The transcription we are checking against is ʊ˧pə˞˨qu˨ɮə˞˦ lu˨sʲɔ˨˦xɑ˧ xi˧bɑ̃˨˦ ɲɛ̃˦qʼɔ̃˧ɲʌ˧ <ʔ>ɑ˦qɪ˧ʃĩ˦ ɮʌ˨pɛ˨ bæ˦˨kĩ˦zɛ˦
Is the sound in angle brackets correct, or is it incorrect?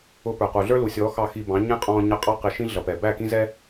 incorrect: qʼ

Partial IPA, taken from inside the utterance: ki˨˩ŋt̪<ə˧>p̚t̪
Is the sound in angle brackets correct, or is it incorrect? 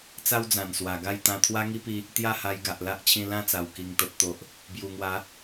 incorrect: ə˨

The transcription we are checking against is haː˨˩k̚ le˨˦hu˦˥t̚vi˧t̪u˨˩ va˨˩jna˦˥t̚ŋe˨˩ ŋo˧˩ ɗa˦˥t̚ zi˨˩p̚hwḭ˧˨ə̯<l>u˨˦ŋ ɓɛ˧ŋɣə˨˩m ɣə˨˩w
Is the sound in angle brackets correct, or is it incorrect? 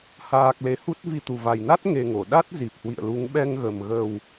correct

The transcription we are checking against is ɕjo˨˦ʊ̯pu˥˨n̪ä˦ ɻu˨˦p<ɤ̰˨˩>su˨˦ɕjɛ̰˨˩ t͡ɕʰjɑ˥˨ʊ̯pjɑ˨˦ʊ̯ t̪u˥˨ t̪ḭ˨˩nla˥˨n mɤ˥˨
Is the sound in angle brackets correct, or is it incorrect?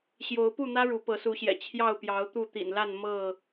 incorrect: ɤ˨˦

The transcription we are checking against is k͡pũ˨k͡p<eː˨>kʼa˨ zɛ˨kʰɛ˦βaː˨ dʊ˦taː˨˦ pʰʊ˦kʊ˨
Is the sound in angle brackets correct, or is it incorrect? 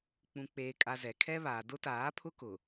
correct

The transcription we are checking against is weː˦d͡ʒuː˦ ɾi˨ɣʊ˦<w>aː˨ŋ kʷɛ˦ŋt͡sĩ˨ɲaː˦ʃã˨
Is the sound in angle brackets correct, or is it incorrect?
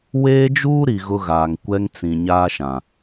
incorrect: ɣ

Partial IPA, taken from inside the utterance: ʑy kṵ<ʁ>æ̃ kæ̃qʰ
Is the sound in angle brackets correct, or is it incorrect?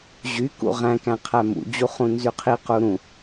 correct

